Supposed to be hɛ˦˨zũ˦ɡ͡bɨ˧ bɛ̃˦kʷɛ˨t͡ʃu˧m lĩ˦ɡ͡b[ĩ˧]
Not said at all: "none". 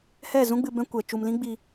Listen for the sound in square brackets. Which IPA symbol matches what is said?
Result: i˧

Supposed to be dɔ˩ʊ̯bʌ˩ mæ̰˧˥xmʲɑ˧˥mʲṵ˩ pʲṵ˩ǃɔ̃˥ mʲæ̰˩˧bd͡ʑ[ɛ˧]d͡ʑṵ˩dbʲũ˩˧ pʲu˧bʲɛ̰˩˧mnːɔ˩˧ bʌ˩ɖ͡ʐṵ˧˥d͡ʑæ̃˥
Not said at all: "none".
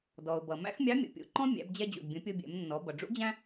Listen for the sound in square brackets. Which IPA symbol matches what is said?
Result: ɛ˧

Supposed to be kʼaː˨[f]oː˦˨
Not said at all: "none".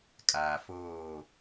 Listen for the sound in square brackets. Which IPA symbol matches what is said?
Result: f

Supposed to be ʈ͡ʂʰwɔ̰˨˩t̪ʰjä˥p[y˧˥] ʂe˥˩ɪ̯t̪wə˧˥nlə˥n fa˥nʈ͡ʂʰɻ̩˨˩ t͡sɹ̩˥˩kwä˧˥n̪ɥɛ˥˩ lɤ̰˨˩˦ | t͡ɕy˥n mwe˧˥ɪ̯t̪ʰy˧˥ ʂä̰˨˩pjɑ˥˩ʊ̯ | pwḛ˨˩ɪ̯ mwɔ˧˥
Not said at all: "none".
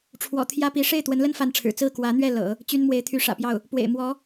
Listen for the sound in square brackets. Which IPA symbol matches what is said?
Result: i˧˥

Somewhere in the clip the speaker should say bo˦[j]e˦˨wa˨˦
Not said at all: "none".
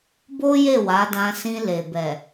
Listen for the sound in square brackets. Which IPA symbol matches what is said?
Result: j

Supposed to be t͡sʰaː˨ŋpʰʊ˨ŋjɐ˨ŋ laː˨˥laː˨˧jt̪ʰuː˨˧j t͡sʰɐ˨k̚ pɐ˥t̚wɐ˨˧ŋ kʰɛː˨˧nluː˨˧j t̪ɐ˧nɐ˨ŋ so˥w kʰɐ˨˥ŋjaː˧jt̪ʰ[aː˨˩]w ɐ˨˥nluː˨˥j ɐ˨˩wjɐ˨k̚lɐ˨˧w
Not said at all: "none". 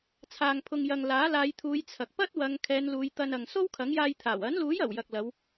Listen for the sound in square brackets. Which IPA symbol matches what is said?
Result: aː˨˩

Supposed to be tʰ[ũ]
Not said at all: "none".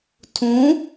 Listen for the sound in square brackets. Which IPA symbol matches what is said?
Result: ũ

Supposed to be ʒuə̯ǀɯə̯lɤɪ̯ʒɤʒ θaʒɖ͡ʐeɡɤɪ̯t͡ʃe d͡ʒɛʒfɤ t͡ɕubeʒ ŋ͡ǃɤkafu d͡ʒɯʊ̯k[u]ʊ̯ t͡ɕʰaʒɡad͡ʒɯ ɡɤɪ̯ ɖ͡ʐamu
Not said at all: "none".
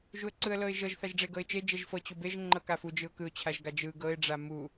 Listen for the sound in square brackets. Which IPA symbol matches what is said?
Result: ɯ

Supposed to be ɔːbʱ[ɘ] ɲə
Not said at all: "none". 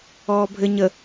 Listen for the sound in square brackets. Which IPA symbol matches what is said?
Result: ɘ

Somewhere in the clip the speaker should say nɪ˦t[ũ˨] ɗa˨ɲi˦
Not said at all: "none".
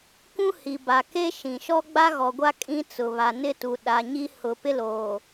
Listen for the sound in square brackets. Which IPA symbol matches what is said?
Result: u˨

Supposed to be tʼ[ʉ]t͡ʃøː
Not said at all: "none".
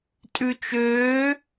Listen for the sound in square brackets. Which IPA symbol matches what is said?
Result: ʉ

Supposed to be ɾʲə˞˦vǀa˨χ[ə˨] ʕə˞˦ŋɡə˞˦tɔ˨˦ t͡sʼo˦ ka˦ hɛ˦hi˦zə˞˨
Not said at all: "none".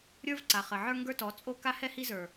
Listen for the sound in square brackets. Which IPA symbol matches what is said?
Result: ə˨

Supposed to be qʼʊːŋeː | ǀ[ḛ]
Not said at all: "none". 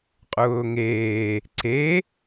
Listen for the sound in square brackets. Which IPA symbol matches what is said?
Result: e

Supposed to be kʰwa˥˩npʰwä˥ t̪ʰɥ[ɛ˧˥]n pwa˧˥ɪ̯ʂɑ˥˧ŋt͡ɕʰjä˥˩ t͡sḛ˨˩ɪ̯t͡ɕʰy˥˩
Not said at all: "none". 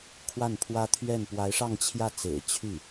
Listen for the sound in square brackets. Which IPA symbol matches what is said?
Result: ɛ˥˩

